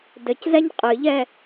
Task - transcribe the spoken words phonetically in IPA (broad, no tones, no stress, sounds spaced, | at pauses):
d ɘ c z ɛ ɲ qʼ ɨ ʎ ɛ